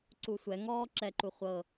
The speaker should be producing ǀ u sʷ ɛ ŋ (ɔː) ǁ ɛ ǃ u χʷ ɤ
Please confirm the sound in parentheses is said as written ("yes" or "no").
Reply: yes